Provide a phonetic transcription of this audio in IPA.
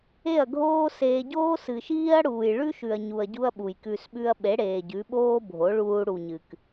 e˦˨ ɐ̯ ɡʱ oː˦ s eː˧ ɟ oː˦ s ɨ˨ ʃ iː˦ ɐ̯ ɽ uː˨ j ɭ ʉ˦ ʃ ʉ˨ ɐ̯ ɲ u˨ ɐ̯ ɟ u˦ ɐ̯ ɓ u˨ j k ʉ˧ s ɓ ʉ˦ ɐ̯ ɓ e˨˦ ɽ eː˨ ɟ ʉ˨˦ ɓ oː˦ bʱ o˨˦ ɭ uː˧ ɽ u˨ ɲ ɨ˨ k

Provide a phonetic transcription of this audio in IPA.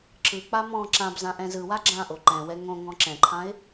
ǁ ɯ k͡p a m ɔ̃ ǁ ã b z ã ʔ ɛ̃ z ɯ w a ɡ͡ǁ ã ʔ o ǃ ɛ̃ w ɛ ŋ õ ŋ ɔ̃ ǁ ɛ̃ ǃʰ ã ɪ̯

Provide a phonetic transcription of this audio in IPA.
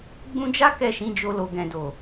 ɡ͡b ũ˧ d͡ʒ a˦ k ɛ˦˨ ʃ ĩ˨˦ d͡ʒ o˧ l o˨ ɡ ɛ̃˨ d o˨

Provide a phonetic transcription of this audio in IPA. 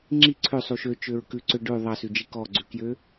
ŋ͡ǁ i ǀʰ ø sˤ u ʃ ø t͡ʃ ø ɹ k ʉ ǀ ø ɖ ʉ ðˤ ɑ s ʉ d͡ʒ i k ɔ ɡ͡ǀ ʉ k j ø

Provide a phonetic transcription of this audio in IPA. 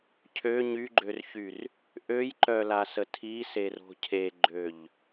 cʰ ø ɲ y ɡ͡ǃ ø r ç y r | ʔ ø j ǃ œ l a s ə tʰ i s e r o̤ cʰ e ɡ͡ǃ ø ʎ

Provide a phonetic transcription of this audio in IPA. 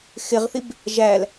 x ɪ ʁ θ i b | ʒ æ l

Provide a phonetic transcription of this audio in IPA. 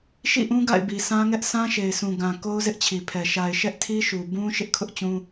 ʃ ḭ˦˨ ʔ ũ˦ ɡ a̰˦˨ ɪ̯ b i˨ s ã˦ ŋ ɛ˦ ʔ s ã˦ ʃ e˨ ɪ̯ s ũ˨ ɡ ã˨ k o˦ ʊ̯ z ɪ˦ ʔ t͡ɕʰ i˨ pʰ ɛ˨ ʃ a˨ ɪ̯ ʃ ɛ˦ ʔ tʰ i˦ ʃ u˨ b ũ˦ ʃ ɪ˦ ʔ kʰ ʊ˦ ʔ t͡ɕ ũ˦

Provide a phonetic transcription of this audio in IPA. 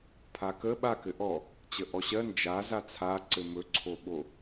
pʰ a k ə ɓ a k ɘ ʔ ɔ | t͡ɕ ə ʔ ɔ ɕ ɜ n d͡ʒ a z a t͡sʰ a ǀ ɘ m ɵ ǀʰ o ɓ o

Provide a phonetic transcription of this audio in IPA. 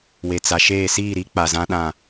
w e˨ t͡s a˨ ʃ eː˦˨ s iː˦˨ ɾ i˦ k͡p a˨ z ã˦ ɗ ã˦˨

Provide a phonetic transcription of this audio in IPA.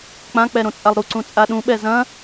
k͡p ã k͡p ɛ ɾ õ t͡sʼ a lˠ ɾ u ǀ ũ t͡sʼ a ɗ ũ ɓ ɛ z ɐ̃

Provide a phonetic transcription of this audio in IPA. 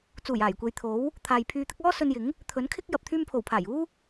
t͡s uː˨˩ j aː˨˩ j kʷ e˨ j t̪ʰ o˨˥ w | t̪ʰ aː˨ j pʰ yː˧ t̪ ɪ˥ k̚ ɔː˥ s ɵ˧ n j ɪ˨˥ ŋ | t̪ʰ ɵ˨˥ n kʰ ɪ˥ k̚ j ɐ˨ p̚ t̪ʰ yː˧ m pʰ o˨˩ w pʰ aː˨˩ j uː˥

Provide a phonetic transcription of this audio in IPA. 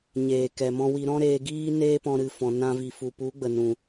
ɲ eː˨ k ɛ˨ m ɔ̃˧ w i˧ ɾ ɔ̃˦ ɾ eː˧ ɡ iː˦ n eː˦ p ɔ̃˧ ɾ ɨ˨ f ɔ̃˨ n ã˧ v i˨ f u˨ p u˨˦ ɡ͡b ə˨ n ũ˨

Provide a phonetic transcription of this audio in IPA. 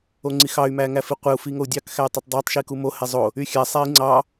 o ŋ͡ǀ i x ɑ y̯ m æ ŋ æ f i qʷ e u̯ f i ŋ o u̯ dʲ ɑ k x æ y̯ tˤ ø tˤ dˤ ɑ tˤ ʃ i k u m o h e zˤ o | y xʲ æ sˤ æ i̯ ŋ͡ǀ ɑ

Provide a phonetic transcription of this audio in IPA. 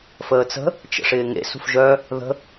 f əː t͡s ə̤ | t͡ʃ ə̰ ʂ ɪː ŋ ḛ s ṳ f ʒ œ | ð ə̤

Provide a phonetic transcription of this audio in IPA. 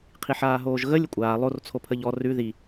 qʰ i ħ aː ɦ oː ʒ ɣ ə lʲ ə kʷʼ aː lˠ o r t͡sʰ o pʰ ə ʎ ɔ r ʉ ð i

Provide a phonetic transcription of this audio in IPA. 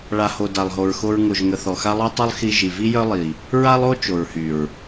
ɭ a˨ h o˨ d a˨ lˠ ɦ o˨ ɹ x o˧ ɹ ŋ o˨ ʒ ŋ ə˨ θ ɔ˨ x a˦ lˠ o˦ tˤ ø˦ lˠ x i˧ ʒ i˨ v i˦ j œ˦ lˠ i˨ | ɹ a˦ lˠ o˦ t͡ʃ o˨ ɹ h y˨ ɹ

